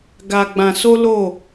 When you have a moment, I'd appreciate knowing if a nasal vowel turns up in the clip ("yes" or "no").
yes